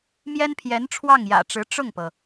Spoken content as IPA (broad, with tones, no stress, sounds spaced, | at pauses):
m j ɛ˥ n pʰ j ɛ˧˥ n ʈ͡ʂʰ w ɑ˥˩ ŋ j ä̰˨˩ ʈ͡ʂ ɻ̩˧˥ ʈ͡ʂ ʊ˥˩ ŋ p ɤ˩